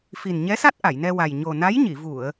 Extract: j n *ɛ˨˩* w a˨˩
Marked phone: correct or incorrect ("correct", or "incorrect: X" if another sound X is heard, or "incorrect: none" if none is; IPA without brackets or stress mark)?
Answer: incorrect: ɛ˧